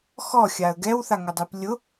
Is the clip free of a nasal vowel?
yes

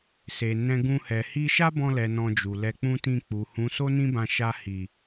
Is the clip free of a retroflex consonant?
yes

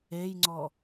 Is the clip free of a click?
no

